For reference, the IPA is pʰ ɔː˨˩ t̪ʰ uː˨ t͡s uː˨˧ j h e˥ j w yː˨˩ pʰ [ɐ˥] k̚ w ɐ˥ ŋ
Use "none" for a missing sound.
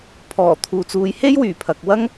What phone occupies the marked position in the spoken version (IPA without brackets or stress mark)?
ɐ˨